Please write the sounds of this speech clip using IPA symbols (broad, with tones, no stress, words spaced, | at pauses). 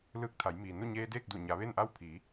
lɯː˧k̚t̪ʰa˩˧jmiː˩ nu˥˨ɲeː˧deː˥˨k̚du˧˩ ɲa˩˧ʋe˥˨nʔa˥˨w pʰiː˩˧